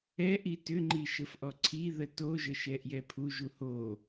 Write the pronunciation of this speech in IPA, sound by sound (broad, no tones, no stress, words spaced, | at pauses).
ɛ ʔitʏŋ͡ǃi ʃəfʔɔǀʰi ðətoʒə ʃɛʔjɛpʰu ʒuho